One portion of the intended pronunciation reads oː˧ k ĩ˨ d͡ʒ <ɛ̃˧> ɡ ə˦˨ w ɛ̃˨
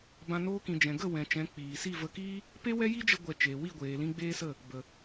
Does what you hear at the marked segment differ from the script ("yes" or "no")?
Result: yes